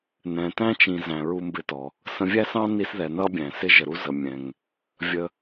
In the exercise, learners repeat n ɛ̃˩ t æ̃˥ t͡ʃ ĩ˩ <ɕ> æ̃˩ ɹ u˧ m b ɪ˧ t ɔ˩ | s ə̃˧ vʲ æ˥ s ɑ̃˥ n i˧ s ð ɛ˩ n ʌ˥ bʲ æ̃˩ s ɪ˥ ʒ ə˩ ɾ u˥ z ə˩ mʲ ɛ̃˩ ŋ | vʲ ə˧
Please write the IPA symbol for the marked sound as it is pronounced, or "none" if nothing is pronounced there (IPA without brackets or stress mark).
z